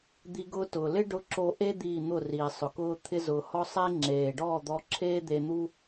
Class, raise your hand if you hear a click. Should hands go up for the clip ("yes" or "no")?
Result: yes